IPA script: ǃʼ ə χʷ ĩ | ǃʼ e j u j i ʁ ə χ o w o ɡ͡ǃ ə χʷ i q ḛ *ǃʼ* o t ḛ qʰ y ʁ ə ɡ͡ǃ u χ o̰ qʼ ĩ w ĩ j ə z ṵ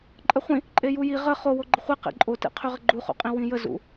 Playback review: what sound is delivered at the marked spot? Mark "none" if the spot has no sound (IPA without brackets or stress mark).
ǃʼ